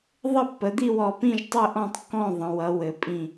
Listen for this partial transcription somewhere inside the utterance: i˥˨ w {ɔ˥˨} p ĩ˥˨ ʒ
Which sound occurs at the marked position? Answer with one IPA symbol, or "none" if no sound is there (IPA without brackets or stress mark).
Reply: ɔ˧˩